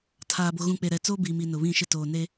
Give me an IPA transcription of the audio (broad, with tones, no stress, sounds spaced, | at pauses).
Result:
tʰ aː˨ b o˨ ɣ ũ˨ k͡p e˨ ɾ ɛ˨ t͡s oː˦ b iː˨ m i˨ n ʊ˨ β ĩ˦˨ ʃ ɪ˦ t oː˨ n e˦